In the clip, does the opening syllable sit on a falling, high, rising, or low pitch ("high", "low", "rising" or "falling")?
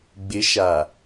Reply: rising